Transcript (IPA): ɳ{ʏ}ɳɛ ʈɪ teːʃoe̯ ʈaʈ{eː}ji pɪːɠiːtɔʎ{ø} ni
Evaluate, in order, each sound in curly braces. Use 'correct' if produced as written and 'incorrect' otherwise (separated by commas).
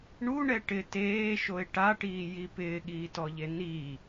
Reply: incorrect, incorrect, incorrect